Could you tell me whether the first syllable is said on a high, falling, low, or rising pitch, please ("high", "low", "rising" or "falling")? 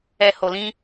low